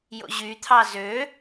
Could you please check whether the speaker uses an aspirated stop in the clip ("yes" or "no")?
yes